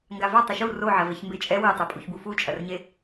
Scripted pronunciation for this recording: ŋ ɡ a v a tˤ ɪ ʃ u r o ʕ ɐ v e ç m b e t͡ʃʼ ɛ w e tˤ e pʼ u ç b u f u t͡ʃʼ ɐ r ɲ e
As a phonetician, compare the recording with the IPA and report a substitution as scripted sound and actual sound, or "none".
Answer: none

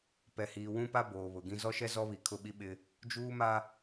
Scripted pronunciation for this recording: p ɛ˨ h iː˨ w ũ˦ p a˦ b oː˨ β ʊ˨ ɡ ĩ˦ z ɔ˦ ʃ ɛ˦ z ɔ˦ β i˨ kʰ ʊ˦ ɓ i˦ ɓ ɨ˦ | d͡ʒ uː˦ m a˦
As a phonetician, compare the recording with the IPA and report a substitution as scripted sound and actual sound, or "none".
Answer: ɨ˦ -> ɪ˦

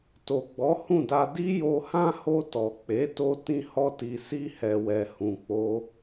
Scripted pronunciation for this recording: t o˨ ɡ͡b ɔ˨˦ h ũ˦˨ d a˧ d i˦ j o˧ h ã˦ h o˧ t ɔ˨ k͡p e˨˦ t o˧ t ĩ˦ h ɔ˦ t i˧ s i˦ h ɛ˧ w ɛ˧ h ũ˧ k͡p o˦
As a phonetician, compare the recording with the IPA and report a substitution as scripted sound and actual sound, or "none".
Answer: none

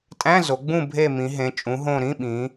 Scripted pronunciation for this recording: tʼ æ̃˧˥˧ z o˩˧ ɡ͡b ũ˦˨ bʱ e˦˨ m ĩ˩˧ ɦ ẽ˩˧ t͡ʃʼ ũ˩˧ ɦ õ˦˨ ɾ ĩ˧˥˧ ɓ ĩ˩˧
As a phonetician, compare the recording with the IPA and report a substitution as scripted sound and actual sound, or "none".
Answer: none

